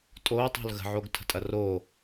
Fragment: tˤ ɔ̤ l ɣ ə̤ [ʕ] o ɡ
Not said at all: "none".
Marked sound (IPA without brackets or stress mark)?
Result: ʕ